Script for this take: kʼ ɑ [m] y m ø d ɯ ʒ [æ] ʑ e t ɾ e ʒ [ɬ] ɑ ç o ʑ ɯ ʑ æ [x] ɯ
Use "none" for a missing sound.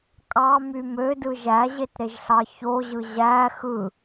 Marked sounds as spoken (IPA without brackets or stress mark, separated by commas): m, æ, ɬ, x